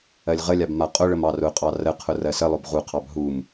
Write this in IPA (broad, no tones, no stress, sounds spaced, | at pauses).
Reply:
ɜ lʲ ʁ ə lʲ a b m a qʼ ʊ ɭ ə m ɑ r ʊ qʼ ɑ r ə qʰ ʊ r ɜ s ə lˠ ʊ b ʁ u qʰ ɑ b ɦ u m